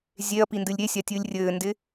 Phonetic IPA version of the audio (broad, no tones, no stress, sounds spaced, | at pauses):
zʲ e ɐ̯ p i n d ɨ lʲ ɾʲ e sʲ a tʲ ɨː lʲ rʲ ɘː n d ɪ